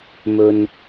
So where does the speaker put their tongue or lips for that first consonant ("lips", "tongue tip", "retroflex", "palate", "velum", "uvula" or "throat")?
lips